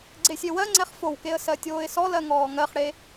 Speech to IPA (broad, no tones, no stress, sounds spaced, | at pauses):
ɡ͡ǀ e sʲ e w ɜ ŋ͡ǀ ɛ χ f o w k e ə̯ s ɜ tʲ oː ɪ̯ s ɔ l ɜ ŋ ɔː ŋ ɜ χ ɽ e